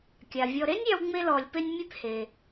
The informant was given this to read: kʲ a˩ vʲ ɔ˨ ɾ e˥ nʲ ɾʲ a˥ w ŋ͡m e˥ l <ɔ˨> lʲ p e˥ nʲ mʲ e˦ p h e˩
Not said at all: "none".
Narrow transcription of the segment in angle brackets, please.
ɔ˨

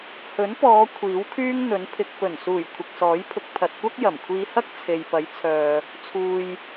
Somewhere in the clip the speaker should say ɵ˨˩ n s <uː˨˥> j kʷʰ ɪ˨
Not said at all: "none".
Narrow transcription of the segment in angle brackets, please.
uː˨˩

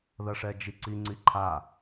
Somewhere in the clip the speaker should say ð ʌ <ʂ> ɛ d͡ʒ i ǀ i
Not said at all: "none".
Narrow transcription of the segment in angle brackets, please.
ʂ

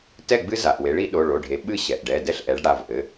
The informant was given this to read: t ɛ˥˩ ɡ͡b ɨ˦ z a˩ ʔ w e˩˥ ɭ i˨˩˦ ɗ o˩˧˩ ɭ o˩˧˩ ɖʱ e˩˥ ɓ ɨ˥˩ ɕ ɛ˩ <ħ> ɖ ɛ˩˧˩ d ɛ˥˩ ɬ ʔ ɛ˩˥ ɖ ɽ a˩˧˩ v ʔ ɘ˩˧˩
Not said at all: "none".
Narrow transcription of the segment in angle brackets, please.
ʔ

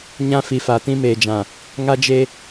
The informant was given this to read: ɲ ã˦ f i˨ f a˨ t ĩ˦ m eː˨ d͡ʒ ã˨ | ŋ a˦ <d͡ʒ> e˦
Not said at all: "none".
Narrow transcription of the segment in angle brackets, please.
d͡ʒ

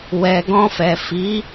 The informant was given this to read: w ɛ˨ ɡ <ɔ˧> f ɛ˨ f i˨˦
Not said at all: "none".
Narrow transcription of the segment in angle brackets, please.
ɔ̃˧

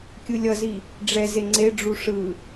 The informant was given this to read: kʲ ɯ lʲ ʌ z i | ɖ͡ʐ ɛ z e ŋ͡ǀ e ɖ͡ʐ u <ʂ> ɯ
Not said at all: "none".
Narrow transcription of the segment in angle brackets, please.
ʂ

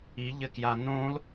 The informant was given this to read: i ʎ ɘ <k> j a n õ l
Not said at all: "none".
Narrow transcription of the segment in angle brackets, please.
k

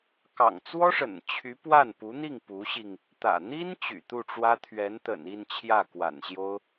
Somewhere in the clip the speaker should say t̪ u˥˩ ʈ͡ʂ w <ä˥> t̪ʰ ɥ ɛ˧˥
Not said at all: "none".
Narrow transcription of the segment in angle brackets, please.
ä˥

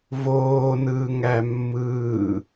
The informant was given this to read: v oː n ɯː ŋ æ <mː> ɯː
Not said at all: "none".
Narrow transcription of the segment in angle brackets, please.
mː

